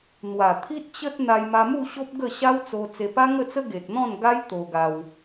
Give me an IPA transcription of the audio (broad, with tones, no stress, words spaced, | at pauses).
n̪wa˨˩t̪ʰi˦t̚t͡ɕə˦t̚ n̪a˧jma˧ mu˥˧ɕo˦p̚ ɡə˥˧ɕa˦wt͡so˧ t͡se˧pa˦ŋə˥˧t͡sə˦ ɡe˨t̚n̪ɔ̃˥˧nɡa˦j t̪o˧ɡa˧w